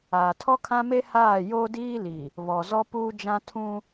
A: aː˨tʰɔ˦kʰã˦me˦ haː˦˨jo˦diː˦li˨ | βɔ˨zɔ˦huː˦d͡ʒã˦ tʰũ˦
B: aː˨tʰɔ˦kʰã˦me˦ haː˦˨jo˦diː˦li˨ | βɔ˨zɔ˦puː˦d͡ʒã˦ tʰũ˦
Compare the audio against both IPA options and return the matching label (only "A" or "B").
B